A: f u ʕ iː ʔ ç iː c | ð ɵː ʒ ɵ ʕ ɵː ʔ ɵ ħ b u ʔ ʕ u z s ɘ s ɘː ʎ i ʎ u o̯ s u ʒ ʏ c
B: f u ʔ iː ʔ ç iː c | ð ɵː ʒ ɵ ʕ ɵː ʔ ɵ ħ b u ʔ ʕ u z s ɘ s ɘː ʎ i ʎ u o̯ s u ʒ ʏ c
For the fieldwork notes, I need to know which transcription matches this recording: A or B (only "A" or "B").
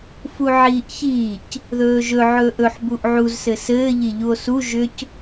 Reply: A